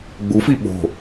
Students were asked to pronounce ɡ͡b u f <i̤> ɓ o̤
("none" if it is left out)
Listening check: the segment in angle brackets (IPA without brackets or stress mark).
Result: i